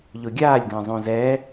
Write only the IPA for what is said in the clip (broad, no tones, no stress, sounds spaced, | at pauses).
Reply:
ʎ o ɡʲ aː lʲ ɡ ã zˤ õ z ɛ